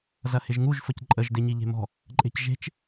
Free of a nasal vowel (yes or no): yes